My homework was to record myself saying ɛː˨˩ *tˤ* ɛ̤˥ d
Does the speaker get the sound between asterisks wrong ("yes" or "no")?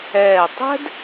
no